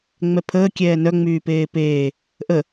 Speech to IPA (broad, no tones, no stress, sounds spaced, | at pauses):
ŋ͡m ɛ pʰ əː kʲ ɛː n œ ŋ͡m yː p eː p eː | ʔ ə